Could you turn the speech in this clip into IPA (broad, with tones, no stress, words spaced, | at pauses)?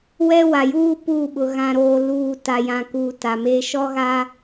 wɛ˦wa˨juː˦ puː˦˨ɓʊ˨ ɣã˨ɾoː˨ luː˨ ta˨jã˨kuː˨ ta˨me˦ ʃɔ˦ɣa˦